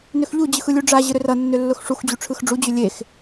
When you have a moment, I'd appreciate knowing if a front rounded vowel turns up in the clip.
yes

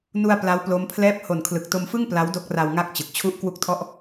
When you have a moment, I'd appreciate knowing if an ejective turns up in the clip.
no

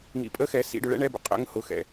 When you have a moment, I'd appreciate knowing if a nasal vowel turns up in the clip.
no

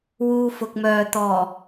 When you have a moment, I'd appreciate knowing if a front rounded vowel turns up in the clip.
yes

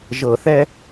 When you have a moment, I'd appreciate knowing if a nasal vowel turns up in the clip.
no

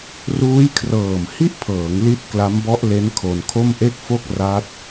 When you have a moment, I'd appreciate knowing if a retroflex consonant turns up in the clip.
no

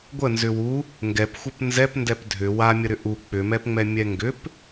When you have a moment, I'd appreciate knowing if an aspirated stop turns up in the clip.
no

